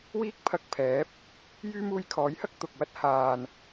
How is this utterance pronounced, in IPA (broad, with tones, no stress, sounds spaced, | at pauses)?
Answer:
w iː˥ k̚ pʰ ɐ˧ k̚ pʰ ɛː˨˥ p̚ | j yː˥ m uː˧ j kʰ ɔː˨˥ j h ɐ˥ k̚ t̪ ʊ˨ k̚ w ɐ˥ t̚ h aː˨ n